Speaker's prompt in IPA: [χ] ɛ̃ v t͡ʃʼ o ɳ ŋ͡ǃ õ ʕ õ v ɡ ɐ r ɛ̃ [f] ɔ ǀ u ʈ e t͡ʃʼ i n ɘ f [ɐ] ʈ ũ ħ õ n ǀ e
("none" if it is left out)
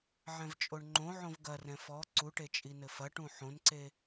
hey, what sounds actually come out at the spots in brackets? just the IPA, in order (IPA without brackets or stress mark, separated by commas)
ʕ, f, ɐ